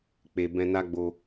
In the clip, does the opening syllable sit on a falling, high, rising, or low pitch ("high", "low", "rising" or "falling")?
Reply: low